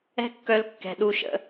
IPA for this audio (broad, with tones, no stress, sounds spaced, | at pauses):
ɛ̤˦ kː œ˧ l kː ɛ̤˨ ɗ u˧ ʃ ə̰˧